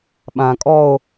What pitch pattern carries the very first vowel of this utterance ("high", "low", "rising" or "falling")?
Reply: low